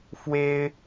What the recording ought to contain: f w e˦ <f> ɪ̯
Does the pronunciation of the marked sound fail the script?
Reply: yes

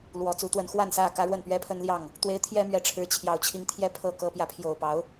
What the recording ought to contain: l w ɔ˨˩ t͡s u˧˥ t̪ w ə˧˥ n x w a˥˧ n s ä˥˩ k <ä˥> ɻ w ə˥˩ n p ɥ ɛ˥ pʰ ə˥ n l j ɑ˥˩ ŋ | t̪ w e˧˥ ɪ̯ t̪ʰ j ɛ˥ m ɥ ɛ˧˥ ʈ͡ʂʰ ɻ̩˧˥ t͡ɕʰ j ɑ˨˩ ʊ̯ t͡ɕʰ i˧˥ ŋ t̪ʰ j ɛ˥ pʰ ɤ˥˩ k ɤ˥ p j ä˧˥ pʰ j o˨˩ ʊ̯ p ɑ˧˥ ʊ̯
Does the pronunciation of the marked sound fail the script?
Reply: no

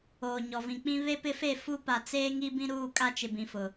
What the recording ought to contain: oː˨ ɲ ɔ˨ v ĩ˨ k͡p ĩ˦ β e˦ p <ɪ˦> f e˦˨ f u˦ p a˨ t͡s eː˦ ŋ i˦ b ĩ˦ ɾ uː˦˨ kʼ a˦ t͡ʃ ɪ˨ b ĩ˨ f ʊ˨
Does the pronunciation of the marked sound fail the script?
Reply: no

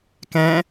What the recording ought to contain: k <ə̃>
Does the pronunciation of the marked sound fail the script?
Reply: yes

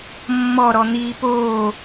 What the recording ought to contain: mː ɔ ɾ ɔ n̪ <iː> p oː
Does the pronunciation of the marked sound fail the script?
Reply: no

